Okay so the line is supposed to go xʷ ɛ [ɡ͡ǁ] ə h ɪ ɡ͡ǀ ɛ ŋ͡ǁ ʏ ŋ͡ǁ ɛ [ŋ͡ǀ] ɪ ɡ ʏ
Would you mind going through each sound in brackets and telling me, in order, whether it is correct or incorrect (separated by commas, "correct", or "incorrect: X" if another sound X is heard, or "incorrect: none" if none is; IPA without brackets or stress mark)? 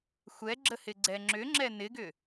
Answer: correct, incorrect: n